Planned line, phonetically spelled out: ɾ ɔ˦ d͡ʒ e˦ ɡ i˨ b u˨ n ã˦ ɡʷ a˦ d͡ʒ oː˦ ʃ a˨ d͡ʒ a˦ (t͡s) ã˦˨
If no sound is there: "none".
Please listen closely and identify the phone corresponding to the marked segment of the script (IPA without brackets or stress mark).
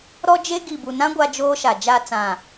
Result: t͡s